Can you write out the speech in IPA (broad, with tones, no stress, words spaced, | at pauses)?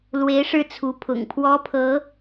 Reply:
lwe˧˥ɪ̯ʂɻ̩˥˩t͡sʰu˧˥pʰʊ̰˨˩ŋ pʰwɔ˥pʰɤ˧˥